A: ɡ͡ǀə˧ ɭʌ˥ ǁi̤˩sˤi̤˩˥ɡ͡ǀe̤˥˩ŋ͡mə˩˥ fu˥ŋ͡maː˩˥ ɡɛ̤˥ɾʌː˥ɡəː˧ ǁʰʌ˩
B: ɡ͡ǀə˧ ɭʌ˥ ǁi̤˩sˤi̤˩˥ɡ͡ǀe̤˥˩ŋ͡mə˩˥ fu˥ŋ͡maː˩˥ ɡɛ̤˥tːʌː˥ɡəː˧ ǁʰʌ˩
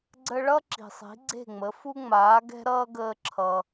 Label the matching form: A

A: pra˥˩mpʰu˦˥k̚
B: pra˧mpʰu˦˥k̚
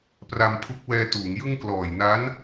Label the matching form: B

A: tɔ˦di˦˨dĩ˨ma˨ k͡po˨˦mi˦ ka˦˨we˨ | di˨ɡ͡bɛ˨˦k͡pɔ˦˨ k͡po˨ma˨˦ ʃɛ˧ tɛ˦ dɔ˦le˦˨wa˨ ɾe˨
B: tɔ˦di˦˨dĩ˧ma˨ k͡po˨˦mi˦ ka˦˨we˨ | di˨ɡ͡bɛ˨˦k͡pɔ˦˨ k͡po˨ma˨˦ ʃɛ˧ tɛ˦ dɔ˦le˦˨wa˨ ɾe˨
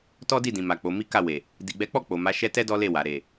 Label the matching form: A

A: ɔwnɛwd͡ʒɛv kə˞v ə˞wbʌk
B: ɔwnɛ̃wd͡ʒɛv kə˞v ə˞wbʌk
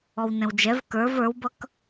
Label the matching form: B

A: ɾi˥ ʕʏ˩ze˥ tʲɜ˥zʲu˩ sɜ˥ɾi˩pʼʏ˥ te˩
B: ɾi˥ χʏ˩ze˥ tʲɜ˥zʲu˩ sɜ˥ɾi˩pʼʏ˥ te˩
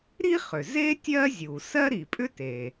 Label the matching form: B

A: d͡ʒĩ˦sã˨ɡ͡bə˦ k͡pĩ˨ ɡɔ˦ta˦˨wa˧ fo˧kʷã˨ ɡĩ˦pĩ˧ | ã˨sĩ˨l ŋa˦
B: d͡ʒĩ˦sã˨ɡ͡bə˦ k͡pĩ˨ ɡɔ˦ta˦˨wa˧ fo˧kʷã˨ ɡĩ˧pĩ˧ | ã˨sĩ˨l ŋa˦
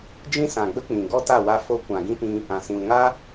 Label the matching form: A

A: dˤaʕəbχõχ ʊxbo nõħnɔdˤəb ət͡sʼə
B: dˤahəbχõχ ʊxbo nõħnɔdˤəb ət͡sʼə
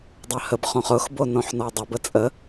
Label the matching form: B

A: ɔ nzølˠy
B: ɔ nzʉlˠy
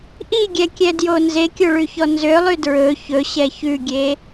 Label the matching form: A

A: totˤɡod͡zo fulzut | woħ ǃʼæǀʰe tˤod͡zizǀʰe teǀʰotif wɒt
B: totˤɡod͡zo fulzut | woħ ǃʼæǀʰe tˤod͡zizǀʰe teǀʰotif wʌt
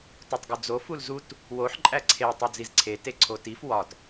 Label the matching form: A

